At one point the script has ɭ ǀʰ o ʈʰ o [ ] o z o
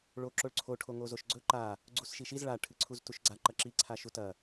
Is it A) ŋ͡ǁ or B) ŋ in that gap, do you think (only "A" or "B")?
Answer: B